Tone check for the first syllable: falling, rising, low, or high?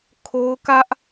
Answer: high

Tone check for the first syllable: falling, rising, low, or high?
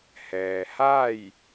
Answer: low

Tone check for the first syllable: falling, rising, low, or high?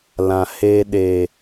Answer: low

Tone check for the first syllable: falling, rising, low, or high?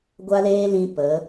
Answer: high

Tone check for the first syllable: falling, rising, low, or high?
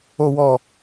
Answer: low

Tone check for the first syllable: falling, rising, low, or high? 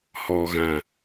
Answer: low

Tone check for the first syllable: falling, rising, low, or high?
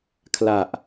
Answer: low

